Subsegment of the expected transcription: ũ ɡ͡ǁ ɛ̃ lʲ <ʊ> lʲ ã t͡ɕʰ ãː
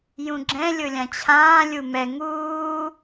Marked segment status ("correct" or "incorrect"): correct